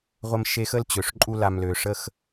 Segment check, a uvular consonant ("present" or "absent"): present